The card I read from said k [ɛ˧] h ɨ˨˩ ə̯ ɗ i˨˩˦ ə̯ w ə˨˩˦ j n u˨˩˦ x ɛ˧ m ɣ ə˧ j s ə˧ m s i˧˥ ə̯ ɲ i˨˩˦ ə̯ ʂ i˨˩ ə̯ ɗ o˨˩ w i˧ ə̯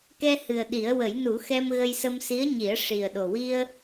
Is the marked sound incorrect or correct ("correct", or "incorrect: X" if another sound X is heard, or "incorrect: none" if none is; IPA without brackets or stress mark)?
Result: correct